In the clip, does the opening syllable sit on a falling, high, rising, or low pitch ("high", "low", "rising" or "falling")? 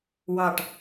low